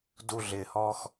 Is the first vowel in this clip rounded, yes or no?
yes